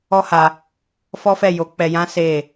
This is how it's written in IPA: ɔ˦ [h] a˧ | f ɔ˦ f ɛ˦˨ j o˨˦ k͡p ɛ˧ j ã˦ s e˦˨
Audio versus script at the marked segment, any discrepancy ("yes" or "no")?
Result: no